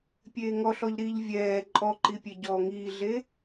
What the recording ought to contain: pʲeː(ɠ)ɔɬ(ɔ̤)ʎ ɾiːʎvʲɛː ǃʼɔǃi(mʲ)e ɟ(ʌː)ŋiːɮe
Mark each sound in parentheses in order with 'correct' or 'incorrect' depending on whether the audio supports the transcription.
incorrect, incorrect, incorrect, incorrect

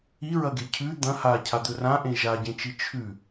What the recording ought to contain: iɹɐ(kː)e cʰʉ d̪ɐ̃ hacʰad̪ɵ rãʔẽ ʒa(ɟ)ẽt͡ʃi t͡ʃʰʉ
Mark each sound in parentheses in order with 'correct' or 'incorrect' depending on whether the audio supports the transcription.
incorrect, correct

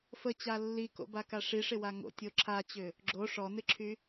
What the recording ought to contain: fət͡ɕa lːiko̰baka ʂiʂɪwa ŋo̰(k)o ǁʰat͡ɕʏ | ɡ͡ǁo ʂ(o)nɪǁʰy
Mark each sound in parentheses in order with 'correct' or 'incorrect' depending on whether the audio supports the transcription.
incorrect, incorrect

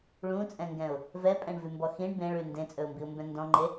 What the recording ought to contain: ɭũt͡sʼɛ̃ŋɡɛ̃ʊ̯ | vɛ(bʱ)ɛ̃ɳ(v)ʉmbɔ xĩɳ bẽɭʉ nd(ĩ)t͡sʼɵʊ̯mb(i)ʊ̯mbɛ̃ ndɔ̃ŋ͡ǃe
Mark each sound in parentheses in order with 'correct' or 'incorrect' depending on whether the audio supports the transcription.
incorrect, correct, incorrect, correct

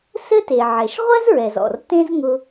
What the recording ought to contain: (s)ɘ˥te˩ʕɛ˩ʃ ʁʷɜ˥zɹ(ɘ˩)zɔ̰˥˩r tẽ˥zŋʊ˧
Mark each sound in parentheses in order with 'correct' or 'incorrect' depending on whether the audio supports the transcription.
correct, incorrect

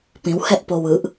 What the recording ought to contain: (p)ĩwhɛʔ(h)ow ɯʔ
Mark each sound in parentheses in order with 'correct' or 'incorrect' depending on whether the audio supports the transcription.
correct, incorrect

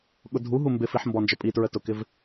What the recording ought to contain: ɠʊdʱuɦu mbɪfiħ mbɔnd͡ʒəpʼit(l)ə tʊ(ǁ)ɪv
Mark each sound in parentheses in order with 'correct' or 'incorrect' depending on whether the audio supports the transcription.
incorrect, incorrect

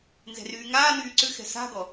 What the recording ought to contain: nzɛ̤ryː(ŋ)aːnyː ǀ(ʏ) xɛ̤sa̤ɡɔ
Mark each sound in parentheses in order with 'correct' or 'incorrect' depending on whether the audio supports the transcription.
correct, correct

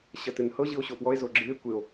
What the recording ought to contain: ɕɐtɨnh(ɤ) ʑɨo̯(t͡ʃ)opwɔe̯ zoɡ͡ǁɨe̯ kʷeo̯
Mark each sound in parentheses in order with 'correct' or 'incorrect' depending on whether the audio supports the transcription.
correct, incorrect

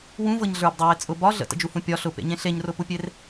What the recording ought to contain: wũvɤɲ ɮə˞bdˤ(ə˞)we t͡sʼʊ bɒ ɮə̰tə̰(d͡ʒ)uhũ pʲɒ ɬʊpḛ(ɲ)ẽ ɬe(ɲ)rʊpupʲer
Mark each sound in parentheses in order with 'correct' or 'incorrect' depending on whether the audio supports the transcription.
incorrect, correct, correct, correct

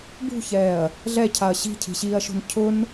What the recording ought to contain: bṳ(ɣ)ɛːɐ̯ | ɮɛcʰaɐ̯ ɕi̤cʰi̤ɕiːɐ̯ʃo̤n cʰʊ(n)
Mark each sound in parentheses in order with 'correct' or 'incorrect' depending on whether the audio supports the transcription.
incorrect, correct

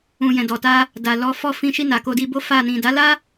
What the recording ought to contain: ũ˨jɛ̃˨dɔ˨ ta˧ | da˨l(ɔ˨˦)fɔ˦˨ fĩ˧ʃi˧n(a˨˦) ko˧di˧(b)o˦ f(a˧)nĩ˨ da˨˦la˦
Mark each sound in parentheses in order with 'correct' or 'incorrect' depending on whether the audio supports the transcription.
correct, incorrect, correct, incorrect

